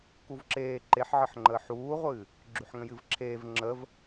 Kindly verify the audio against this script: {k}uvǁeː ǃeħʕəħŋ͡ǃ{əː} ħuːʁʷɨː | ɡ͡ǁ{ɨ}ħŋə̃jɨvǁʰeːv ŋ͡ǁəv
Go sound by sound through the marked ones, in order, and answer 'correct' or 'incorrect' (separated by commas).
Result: correct, correct, incorrect